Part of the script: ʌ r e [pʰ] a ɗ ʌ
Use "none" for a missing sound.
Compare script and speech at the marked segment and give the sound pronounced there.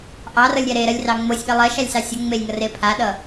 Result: pʰ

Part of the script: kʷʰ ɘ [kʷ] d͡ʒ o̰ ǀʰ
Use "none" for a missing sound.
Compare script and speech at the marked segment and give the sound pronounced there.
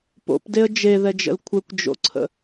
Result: kʷ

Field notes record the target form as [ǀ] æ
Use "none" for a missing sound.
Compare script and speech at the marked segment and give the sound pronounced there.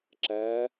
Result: ǁ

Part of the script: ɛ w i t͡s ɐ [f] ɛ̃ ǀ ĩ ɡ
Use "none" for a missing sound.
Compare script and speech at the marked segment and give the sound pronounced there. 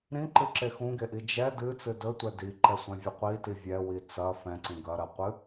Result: f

